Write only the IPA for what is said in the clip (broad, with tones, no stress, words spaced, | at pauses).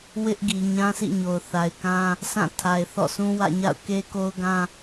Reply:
wɪ˦ʔɡi˨ ɲã˦sḭ˦˨ ɲo˨ʊ̯θa˨ɪ̯kã˦ | sʰã˦˨tʰa˨ɪ̯ θɔ̰˦˨sʰũ˦wä̰˦˨ɲa̰˦˨ʊ̯ ke˦ko˦ʊ̯ɡã˦